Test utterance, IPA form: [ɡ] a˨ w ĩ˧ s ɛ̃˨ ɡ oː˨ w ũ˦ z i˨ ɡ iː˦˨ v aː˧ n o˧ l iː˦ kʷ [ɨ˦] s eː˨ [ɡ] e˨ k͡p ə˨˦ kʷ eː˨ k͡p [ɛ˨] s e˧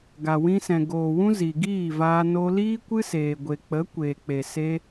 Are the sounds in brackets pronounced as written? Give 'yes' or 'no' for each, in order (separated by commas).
yes, yes, no, no